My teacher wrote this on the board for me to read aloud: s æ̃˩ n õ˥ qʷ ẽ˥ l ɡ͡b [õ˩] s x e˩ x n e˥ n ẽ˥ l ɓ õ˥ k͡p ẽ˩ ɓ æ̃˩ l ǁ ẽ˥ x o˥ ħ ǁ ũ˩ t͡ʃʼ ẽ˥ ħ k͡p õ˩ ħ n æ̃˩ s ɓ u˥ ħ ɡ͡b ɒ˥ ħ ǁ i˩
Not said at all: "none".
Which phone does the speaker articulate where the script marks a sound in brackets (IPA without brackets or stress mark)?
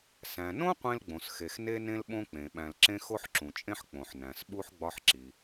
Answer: õ˩